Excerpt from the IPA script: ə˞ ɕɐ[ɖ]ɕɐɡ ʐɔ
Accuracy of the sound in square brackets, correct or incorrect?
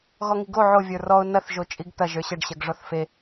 correct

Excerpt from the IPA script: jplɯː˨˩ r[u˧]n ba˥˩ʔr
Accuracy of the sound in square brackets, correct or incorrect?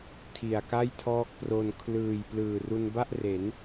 correct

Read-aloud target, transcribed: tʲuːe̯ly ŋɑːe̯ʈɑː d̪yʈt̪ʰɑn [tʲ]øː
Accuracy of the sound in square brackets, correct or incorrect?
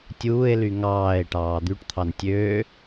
correct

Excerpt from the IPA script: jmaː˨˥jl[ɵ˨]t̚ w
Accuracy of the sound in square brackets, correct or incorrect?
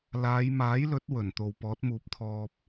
incorrect: ɵ˨˥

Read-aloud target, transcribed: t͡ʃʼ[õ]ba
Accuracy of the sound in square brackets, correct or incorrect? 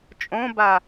correct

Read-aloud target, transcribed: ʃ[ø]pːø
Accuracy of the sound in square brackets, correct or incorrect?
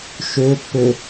correct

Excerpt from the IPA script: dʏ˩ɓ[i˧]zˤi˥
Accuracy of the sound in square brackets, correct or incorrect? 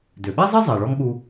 incorrect: i˥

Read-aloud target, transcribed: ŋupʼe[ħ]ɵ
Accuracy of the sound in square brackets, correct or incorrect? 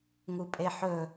correct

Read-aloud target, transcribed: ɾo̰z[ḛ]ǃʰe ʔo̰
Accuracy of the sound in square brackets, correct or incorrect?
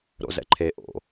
incorrect: ɛ̰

